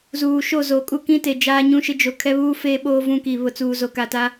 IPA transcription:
z uː˨ ʃ o˦˨ z o˨ kʼ u˦ k ĩ˦ t e˨ d͡ʒ aː˦ ɲ ũ˦ ʃ ɪ˦ d͡ʒ o˨ kʰ ɛ˦ β uː˦ f eː˦ ɓ oː˦ v ũ˦ k i˨ β ʊ˨ t͡s uː˨ z o˨ k a˨ t a˦

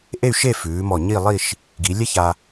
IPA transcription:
ʔ e˥˧ y̯ ʃ e˥˧ f ʉː˩˧ m ɔ˧˩ ɲ i˥˧ lˠ i˥˧ ʃ | ɡ i˩˧ lʲ ɛ˥ ç a˧

